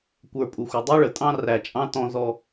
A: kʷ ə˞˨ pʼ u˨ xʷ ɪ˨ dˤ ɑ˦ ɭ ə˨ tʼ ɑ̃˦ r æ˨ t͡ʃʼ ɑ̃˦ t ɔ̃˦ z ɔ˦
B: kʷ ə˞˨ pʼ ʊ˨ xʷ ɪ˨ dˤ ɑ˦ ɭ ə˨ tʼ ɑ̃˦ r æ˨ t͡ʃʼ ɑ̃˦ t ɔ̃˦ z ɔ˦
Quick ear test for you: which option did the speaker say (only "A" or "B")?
A